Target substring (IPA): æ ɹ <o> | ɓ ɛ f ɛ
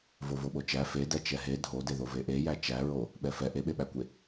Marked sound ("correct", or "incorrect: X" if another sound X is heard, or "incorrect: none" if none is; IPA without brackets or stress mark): correct